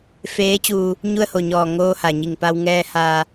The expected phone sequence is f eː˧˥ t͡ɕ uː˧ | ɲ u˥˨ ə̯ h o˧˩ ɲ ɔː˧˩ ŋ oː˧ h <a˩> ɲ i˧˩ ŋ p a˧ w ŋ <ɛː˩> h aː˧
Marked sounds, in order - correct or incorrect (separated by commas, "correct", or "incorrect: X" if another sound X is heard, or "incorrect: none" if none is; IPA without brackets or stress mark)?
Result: correct, incorrect: ɛː˧